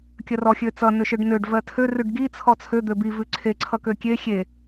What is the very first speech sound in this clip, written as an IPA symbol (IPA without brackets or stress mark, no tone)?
kʲ